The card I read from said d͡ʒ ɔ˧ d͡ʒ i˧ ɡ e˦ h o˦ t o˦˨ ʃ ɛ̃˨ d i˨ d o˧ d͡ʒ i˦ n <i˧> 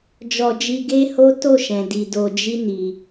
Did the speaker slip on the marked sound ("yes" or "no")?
no